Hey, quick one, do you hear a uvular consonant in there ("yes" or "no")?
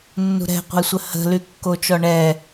yes